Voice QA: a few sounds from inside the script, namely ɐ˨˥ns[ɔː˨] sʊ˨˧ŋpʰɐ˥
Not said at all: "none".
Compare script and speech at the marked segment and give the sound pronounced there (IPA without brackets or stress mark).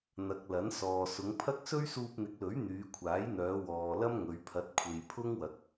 ɔː˨